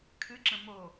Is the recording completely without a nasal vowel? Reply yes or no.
no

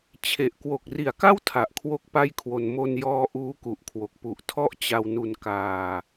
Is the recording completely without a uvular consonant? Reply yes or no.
yes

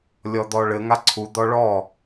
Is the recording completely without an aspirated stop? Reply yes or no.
no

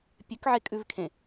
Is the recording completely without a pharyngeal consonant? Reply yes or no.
no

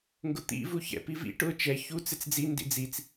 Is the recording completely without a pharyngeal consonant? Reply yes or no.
yes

